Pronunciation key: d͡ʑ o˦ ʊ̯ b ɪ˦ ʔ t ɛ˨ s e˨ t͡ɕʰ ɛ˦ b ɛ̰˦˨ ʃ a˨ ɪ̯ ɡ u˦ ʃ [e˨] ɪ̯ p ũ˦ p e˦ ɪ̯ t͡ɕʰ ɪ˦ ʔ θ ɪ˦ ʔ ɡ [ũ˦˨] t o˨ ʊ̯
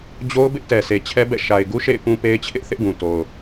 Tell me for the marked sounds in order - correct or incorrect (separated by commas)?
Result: incorrect, incorrect